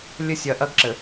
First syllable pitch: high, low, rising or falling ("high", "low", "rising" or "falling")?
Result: high